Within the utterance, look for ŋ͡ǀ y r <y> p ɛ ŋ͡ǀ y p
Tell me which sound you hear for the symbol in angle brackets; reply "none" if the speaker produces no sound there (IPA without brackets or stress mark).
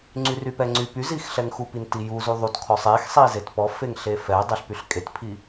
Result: y